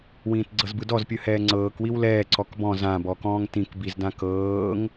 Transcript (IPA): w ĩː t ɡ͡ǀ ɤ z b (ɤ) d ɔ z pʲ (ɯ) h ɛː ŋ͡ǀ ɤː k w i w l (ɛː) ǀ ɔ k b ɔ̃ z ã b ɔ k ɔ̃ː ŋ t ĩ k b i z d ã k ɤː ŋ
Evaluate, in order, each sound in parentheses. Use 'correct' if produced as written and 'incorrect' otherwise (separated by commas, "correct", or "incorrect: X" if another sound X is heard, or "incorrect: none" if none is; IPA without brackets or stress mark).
incorrect: ɯ, correct, correct